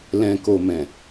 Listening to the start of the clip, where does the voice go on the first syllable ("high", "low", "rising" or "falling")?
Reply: low